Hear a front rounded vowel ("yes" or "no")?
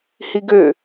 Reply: yes